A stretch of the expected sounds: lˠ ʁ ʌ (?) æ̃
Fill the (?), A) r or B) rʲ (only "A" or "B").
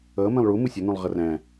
A